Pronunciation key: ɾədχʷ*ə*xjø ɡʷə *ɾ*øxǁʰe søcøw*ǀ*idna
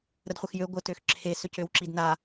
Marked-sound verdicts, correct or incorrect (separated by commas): correct, incorrect, incorrect